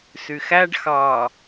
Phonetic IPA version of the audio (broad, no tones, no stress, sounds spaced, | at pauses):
s y x æ ɖ x ɑ